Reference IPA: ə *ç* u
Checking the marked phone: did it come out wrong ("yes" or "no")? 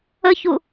no